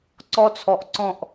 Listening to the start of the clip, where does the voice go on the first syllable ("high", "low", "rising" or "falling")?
high